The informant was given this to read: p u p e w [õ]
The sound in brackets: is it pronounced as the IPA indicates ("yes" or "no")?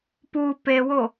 no